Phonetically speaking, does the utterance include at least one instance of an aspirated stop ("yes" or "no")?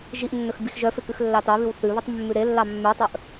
no